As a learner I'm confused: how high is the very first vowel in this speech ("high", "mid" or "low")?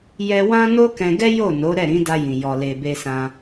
mid